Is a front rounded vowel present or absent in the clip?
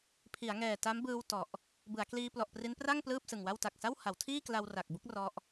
absent